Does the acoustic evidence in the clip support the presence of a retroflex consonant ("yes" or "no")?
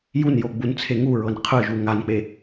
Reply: no